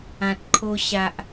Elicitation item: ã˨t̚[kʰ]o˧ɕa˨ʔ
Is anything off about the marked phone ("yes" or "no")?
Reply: no